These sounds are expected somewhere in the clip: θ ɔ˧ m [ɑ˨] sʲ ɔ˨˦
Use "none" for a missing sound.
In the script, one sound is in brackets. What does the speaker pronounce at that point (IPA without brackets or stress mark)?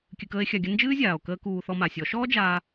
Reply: a˨